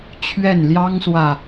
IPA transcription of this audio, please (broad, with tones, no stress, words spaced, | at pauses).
t͡ɕʰɥɛ˥˨n ljɑ˦ŋswä˨˩